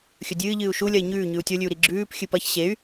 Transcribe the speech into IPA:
xʲɵdʲɨːʎɨːu̯ ʃulʲɐi̯ ɲʉːɲʉu̯ tʲolʲʉu̯ɾi ɡ͡ǁʉːp xʲɨpɐç ɕey̯

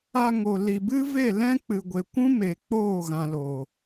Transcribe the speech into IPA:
a˧ ŋo˨li˨bɨ˦ ve˦˨lɛ̃˦ k͡pɨ˨ɡʷe˨kʷũ˦ me˨ k͡poː˦˨ɣã˨lo˨

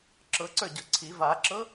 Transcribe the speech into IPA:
ǁɤǀə˞ ɟɤǀʰi vaǁɤ

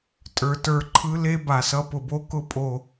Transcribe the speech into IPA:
tʼə˞˨tə˞˦˨ ǃʰɯ˦le˦ ba˨sʌ˦ pʊ˨bo˦kʊ˦ pʼo˨

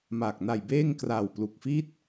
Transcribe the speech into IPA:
ma˨˩k̚ na˨˩j beː˥˩ŋkra˨˩wplu˨˩k̚ fi˥˩t̚

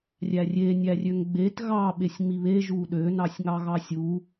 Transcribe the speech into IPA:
rʲærʲe nʲærʲøŋɡ͡bet ɣɑ ɓesʲŋ͡miβe ʒuɗø nɑsʲŋɑɣɑsʲu

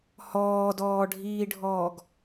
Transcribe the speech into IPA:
hɔːdɔːɖʱiːɖʱɔːɡ

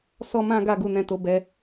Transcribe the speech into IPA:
sɔ˦mã˦ɡa˧ ɡu˧nɛ̃˧to˧bɛ˧

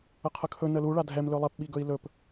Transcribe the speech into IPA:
əqʰəkʰɵ nəlu ɭadʱɛm lɵlˠɛp ɓiɡɵi̯lɵp

